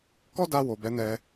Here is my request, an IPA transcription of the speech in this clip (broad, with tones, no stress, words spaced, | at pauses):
kɔ˦da˧ wo˨bɛ˨˦nɛ˧